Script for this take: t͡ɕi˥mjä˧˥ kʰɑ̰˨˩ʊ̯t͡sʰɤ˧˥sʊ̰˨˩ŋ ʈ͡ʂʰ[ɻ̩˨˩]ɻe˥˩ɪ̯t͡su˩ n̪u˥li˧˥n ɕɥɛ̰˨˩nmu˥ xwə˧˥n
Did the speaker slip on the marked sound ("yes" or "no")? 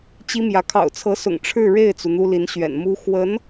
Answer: yes